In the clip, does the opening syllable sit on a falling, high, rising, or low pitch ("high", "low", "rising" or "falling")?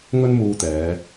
high